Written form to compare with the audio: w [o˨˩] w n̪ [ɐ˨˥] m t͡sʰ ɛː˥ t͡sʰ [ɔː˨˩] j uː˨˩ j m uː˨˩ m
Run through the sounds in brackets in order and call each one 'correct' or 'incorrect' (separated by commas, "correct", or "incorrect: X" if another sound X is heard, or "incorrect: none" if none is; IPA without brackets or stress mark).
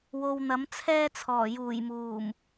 incorrect: o˨, correct, correct